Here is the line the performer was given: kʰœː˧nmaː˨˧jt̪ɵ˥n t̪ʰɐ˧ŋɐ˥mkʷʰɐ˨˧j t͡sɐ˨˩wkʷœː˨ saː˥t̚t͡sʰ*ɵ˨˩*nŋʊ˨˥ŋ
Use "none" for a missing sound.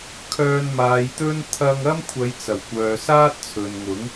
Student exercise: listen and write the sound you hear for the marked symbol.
ɵ˨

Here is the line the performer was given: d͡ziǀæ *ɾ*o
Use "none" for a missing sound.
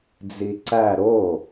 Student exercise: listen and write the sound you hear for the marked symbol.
ɾ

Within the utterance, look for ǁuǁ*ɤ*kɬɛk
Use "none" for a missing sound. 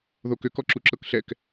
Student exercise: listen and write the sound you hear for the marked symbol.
ɤ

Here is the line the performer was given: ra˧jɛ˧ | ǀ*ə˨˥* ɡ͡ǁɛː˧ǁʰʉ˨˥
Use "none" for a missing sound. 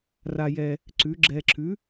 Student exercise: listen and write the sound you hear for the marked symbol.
ʉ˨˥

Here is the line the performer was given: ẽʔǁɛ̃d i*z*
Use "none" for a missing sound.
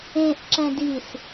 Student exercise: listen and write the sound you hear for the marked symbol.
s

